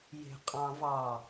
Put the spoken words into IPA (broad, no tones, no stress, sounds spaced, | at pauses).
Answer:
j e̤ qʼ ɑ̃ v ɑ